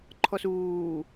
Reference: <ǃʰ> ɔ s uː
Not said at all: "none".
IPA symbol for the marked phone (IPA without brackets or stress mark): ǃʰ